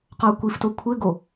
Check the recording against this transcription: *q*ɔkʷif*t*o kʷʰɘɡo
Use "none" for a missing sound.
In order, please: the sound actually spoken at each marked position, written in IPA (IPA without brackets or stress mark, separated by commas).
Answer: q, t